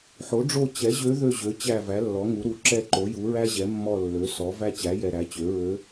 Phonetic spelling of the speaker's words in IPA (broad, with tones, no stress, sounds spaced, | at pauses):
ħ o˩˥ ɖ͡ʐ o˦˨ t͡ɕ ɛ˩˥ ʑ ø˧˥ ð ø˦˨ ʑ ø˩˥ t͡ɕ æ˦˨ v æ˩˥ lː ɔ˩˥ ŋ u˩˥ ɾ u˩˥ ǁ ɛ˦˨ ǃ o˩˥ j u˩˥ ɹ æ˥ ʑ ɛ˩˥ mː ɔ˦˨ lː ø˩˥ s ɔ˩˥ v æ˥ t͡ɕ æ˩˥ j ɛ˨ ɾ æ˩˥ t͡ɕ ø˩˥ ɹ ø˧˥